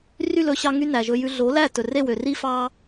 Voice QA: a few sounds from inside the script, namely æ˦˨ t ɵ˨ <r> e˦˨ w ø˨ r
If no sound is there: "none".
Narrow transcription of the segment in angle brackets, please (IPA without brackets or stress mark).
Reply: r